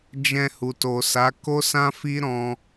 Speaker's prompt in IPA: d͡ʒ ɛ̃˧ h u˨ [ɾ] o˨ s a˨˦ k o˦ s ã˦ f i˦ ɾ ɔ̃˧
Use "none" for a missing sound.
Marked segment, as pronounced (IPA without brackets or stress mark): t